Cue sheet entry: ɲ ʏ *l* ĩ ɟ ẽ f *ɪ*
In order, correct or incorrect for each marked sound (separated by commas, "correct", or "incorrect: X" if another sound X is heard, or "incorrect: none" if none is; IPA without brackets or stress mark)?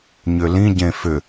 correct, incorrect: ʏ